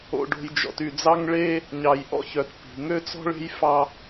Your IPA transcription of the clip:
o̰˨ ɖ o̤˨ j d͡ʒ ɔ̰˨ t y˨ d͡z ɑ˦ ŋ ɭ e˦ | ɲ ɑ˨ j ʔ ɔ̰˦ ç œ˨ t p i̤˨ ŋ ø˦ t͡s ɔ̤˦ ɭ e̤˦ j f ɑ˦

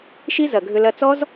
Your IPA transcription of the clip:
ʃ i˦ z ɐ˨ ɡʱ ʏ˧ l ɐ˧ t͡s ɔ˦ z

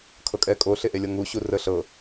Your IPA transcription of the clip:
kʰ ɤ kʼ ɛ kʼ o ɬ e ʔ e lʲ ɤ ŋ u ɕ u r ə ɬ ɤ

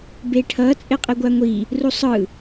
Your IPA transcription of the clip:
b e ʈʰ ʌ t͡sʼ e qʼ e ɡʷ a ŋʷ i | r u sˤ ɯ

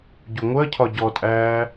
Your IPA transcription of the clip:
ɟ u ŋʷ ɜ cʰ ɒ ɟ ɔ tʼ æː

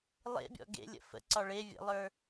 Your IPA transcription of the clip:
lˠ ḛ bʲ ɔ̰ ɡ ḛ lʲ ə̰ f ə̰ ǀ ɒ ɭ e vʲ ə̰ lˠ ə˞

